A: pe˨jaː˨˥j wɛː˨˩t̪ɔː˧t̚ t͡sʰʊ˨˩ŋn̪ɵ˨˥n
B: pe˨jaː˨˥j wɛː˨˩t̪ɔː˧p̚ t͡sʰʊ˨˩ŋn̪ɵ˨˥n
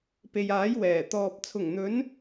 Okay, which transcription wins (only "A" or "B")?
B